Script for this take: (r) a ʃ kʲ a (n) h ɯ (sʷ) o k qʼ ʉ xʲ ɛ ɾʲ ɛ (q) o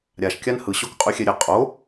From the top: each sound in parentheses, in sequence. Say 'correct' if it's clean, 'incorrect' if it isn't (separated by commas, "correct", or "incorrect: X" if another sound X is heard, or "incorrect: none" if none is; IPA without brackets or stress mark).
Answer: incorrect: ɾʲ, correct, incorrect: ɕ, incorrect: qʼ